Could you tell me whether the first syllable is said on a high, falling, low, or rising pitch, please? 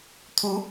rising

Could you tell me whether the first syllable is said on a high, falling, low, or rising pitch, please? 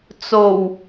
low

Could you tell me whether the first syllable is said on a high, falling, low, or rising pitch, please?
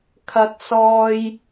low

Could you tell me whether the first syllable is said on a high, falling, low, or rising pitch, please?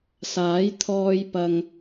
rising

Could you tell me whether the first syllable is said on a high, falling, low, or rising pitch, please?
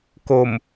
low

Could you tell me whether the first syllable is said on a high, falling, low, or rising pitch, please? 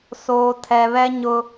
low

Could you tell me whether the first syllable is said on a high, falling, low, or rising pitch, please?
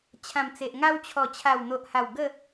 low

